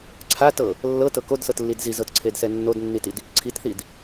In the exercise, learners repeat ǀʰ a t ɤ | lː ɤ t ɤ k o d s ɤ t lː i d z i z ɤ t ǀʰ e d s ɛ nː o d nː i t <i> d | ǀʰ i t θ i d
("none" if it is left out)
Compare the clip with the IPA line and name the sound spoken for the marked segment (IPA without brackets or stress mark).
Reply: i